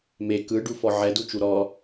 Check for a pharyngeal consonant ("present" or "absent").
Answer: present